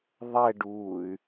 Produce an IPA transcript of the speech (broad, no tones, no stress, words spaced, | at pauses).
ðˤɛɖuːy̯